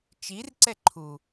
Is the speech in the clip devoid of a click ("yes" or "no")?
no